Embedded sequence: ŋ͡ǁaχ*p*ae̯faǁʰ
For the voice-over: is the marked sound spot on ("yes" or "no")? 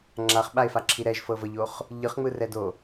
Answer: no